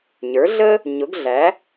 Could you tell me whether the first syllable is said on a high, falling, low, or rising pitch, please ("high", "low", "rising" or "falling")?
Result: rising